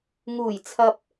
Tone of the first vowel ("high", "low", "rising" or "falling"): low